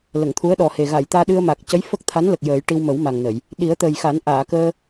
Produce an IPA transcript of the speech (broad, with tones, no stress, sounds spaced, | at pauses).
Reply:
l ə˨˩˨ ŋ t̪ʰ u˧˥ ə̯ ɗ ɔ˨˩ h e˨˩ ɣ a˨˩˨ j t̪ aː˧ ɗ ɨ˧ ə̯ m a˨˩ k̚ c ə˧˥ j f ə˦˥ k̚ t̪ʰ a˧˥ n l ə˨˩ k̚ j əː˨˩˦ j ʈ i˧ w m ə˨˩˦ w m a˨˩ ŋ n ə˨˩˨ j | ɗ i˨˩˦ ə̯ t̪ əː˨˩ j x a˨˩˦ n ʔ aː˨˩˨ k əː˧